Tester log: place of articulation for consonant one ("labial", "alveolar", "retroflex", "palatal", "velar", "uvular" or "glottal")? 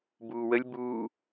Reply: labial